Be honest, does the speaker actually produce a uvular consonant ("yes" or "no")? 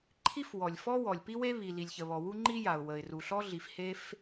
no